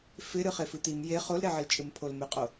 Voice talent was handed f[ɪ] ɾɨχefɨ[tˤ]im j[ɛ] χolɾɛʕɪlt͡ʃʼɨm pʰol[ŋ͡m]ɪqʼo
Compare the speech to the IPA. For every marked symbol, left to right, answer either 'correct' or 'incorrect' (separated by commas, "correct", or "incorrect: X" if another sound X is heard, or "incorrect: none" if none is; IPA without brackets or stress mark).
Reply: correct, incorrect: t̪, incorrect: e, incorrect: m